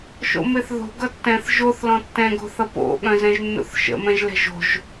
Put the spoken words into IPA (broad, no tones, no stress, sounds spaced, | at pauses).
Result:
ʃ o̰ m e θ ð o̤ ɡ ʌ tː ɛ̃ θ ʒ o θ l ɔ̃ tː ɛ̃ ɡ o̤ θ ʌ p o̰ ɠ œ̃ z ɛ̃ ʒ nː ṵ θ ʃ ə̰ m ɛ̃ ʒ l ɛ̤ ʒ o̤ ʒ